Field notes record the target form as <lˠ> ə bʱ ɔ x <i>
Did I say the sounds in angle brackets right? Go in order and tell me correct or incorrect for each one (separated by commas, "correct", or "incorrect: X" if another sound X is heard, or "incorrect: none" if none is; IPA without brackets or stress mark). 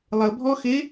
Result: correct, incorrect: e